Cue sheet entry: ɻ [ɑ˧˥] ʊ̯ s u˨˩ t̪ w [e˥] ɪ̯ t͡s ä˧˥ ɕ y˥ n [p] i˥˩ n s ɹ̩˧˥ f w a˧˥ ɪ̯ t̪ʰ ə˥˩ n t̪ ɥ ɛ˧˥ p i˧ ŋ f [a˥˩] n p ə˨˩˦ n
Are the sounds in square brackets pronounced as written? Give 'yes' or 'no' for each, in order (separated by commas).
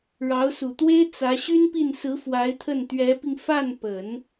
yes, yes, yes, yes